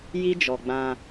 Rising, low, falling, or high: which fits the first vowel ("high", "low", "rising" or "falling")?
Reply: high